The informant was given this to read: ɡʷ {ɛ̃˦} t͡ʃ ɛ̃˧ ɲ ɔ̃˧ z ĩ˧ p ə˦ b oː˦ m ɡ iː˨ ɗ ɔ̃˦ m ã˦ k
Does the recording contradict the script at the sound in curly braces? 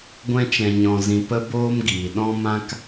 no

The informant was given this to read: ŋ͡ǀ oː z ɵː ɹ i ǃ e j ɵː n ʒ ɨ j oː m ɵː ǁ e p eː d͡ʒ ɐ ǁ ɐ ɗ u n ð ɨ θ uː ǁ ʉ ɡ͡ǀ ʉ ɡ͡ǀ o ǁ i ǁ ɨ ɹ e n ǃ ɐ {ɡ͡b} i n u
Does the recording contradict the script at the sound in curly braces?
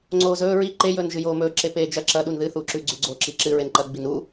no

